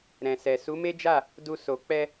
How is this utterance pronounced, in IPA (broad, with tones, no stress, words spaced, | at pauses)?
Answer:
ɾɛ̃˨sɛ˨ su˨˦me˦d͡ʒa˦˨ | du˧ so˨ k͡pɛ˧